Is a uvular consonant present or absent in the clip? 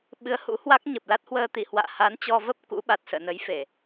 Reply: absent